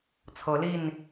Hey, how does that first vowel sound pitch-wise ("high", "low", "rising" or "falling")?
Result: rising